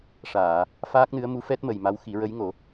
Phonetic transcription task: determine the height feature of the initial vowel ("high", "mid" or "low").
low